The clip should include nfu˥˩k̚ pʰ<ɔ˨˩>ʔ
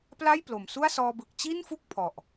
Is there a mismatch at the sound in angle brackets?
no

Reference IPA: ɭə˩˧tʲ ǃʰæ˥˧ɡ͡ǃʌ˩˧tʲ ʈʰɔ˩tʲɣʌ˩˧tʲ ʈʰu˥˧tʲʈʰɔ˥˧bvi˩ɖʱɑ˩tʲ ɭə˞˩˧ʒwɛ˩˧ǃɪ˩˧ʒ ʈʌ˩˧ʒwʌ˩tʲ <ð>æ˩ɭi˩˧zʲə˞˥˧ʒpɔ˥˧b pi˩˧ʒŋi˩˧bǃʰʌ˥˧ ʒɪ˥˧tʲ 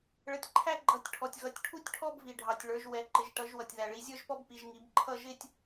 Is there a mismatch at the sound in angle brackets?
no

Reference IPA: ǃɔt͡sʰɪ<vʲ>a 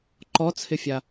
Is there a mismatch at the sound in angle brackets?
yes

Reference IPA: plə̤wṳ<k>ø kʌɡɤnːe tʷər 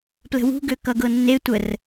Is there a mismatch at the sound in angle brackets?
yes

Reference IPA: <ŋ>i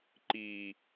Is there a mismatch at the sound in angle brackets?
yes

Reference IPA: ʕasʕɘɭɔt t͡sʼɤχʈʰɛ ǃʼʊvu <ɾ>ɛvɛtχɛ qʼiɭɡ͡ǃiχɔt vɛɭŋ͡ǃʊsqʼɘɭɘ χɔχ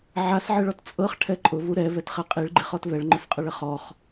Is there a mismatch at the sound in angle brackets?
no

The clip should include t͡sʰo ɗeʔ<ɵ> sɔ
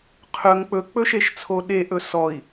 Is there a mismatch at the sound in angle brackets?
no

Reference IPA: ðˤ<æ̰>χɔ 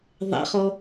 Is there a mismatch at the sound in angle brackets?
no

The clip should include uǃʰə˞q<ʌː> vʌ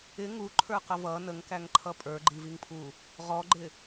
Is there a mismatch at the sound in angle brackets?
yes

